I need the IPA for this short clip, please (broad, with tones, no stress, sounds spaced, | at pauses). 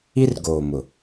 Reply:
i˦ r ɡ oː˨ m ʊ˨